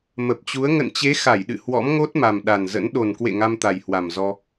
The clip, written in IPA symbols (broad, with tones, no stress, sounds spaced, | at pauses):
m ə˨˩ p̚ t͡ɕ u˨˦ ə̯ ŋ ə̰˧˨ n t͡ɕ e˨˦ x a˧˩ j ɗ ɨ̰˧˨ h w ɔ̰˧˥ m ŋ o˦˥ t̚ m a˨˩ m ɗ a˨˩ n z ə̰˧˥ n ɗ o˨˩ n k w ḛ˧˨ ŋ a˧ m t̪ a˨˩ j h w a˨˩ m z ɔ˧